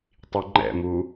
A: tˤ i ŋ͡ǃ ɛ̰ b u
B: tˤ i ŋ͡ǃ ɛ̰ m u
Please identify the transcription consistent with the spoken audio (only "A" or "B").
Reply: B